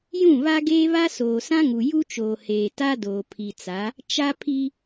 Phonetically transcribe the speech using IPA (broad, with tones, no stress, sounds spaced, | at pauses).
j ũ˦˨ β a˦ ɡ eː˦ β a˦ s oː˨ s ã˦ ŋ u˨ j u˦ t͡ʃ oː˨ h eː˨ t a˦ d oː˨ pʰ i˨ t͡s a˨˦ | t͡ʃ a˦ pʰ i˦